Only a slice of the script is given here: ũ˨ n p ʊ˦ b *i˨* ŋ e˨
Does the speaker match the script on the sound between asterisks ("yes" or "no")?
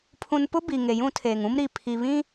yes